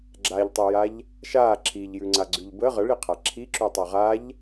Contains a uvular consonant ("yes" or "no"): yes